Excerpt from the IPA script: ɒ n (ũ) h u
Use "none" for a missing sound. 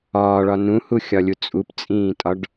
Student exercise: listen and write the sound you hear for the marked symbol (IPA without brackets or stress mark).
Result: ũ